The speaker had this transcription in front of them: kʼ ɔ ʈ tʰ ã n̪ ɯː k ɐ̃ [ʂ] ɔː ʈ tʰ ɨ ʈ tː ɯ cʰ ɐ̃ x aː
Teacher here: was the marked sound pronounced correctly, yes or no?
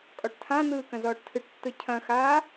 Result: no